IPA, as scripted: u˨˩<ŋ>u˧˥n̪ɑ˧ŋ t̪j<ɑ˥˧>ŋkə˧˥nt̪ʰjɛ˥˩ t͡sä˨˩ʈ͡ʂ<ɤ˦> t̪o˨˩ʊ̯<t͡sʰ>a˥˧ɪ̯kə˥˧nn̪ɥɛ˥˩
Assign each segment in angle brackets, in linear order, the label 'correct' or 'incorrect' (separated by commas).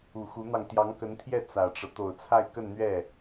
incorrect, incorrect, correct, correct